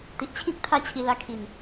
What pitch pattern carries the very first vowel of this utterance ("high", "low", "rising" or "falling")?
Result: low